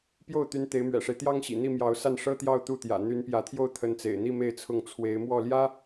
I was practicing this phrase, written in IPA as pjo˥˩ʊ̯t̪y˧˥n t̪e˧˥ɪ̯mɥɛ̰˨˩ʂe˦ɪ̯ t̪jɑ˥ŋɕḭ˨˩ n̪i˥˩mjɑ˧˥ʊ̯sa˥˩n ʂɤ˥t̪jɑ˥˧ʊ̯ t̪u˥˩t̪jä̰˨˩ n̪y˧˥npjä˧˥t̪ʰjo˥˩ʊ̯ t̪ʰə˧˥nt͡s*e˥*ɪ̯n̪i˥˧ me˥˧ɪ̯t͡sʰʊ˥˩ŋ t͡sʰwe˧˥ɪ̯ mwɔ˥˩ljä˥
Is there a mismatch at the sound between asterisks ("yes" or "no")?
yes